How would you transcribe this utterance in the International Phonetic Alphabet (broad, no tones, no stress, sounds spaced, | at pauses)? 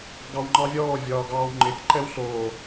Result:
ɡ ɑ w ŋ͡ǃ ɑ vʲ ɔː vʲ ɒː ɡ ɑː w ŋ͡ǃ ɪ k ǃ ɛ w ɬ oː